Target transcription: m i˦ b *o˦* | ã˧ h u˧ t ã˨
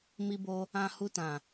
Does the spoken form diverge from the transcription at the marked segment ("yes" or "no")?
no